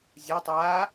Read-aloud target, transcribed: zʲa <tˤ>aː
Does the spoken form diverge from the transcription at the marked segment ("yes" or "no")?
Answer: no